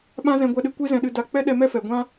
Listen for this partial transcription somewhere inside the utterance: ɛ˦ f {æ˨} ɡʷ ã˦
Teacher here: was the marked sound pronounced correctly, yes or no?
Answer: no